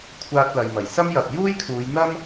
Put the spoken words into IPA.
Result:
kʷʰ aː˧ t̚ l ɐ˨ j m ɐ˨˩ j s ɐ˥ m j ɐ˨ p̚ j uː˥ j kʰ uː˨˧ j n̪ ɐ˥ m

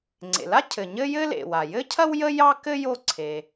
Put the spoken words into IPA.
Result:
ŋ͡ǀ ḛ˩ l a˥ cʰ ɘ˩ ɲ ɘ˥ j ɘ˥ l ḛ˩ w a˩ j ɘ˥ cʰ ɐ˥ w j ə˥ j ɑ˥ k ɘ˥ j o˥ ǀʰ e˩

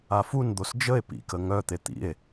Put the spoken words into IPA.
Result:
a f u n d̪ o s d͡ʒ ə e̯ p ḭ k ə ŋ œ t̪ e t̪ ḭ e̯

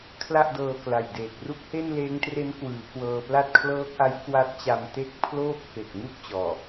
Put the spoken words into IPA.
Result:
kʰ l a˥˩ ʔ d ɤː˧ k l a˨˩ j d eː˨˩ k̚ r u˥˩ k̚ h e˥˩ n l eː˦˥ ŋ t r e˦˥ n k w ɯː˩˦ k w ɤː˧ p l a˥˩ t̚ kʰ l ɤː˦˥ k̚ ʔ a˦˥ j k w a˦˥ t̚ t͡ɕ a˧ m t e˥˩ k̚ pʰ l oː˥˩ p̚ f e˨˩ k̚ ŋ u˥˩ k̚ t͡ɕ ɔː˨˩

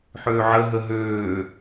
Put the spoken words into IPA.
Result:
ħ øː ʕ ə ɦ ə ɦ øː

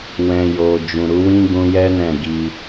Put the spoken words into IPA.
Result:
w ɛ̃˨ j o˨ d͡ʒ ũ˨ ɾ u˨˦ w ĩ˦ ɡ ũ˧ j ɛ˦ n ɛ̃˦˨ ɡ i˧

